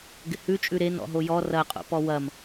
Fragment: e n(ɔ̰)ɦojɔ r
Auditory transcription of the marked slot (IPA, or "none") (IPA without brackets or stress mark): ɔ̰